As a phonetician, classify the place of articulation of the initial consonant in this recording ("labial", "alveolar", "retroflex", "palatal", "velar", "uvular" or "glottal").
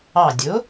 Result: alveolar